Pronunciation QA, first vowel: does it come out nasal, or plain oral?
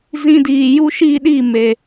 nasal